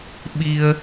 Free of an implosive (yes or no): no